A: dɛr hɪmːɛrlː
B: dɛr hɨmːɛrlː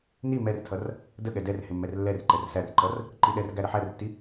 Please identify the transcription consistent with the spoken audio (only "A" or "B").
A